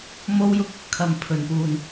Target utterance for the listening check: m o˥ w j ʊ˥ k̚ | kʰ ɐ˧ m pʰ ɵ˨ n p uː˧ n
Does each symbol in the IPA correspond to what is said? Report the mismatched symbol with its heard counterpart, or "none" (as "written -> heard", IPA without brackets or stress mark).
none